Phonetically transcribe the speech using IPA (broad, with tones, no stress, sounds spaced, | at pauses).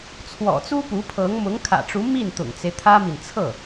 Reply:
t͡sʰ w ɔ̰˨˩ t͡s u˥ p u˧˥ pʰ ɤ˧˥ ŋ m ʊ˧˥ ŋ kʰ ä̰˨˩ ʈ͡ʂ u˧˥ m i˥˩ n t̪ ʊ̰˨˩ ŋ t͡s e˦ ɪ̯ t̪ʰ ä˥ m i˨ n t͡sʰ ɤ˥˩